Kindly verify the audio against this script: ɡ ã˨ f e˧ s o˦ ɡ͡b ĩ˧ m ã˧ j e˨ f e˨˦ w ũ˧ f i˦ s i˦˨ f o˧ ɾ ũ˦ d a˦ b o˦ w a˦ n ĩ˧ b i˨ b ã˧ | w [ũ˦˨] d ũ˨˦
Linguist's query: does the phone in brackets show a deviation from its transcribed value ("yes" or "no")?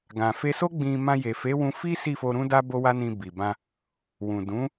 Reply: yes